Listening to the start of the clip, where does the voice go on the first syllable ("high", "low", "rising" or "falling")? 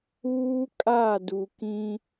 high